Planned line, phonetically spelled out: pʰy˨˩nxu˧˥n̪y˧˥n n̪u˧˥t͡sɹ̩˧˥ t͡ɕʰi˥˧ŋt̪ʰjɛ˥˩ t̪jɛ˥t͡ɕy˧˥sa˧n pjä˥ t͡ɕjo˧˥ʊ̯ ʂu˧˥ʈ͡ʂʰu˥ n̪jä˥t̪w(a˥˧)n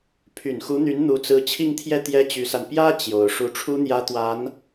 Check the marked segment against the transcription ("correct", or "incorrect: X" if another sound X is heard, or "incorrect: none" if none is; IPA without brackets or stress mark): incorrect: a˧˥